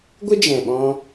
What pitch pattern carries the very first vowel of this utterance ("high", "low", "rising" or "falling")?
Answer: high